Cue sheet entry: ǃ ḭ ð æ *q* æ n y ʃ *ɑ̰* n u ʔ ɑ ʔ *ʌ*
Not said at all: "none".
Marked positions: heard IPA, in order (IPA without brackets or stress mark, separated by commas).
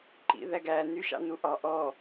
ɡ, ɑ̰, ɔ